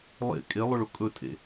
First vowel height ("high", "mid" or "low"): mid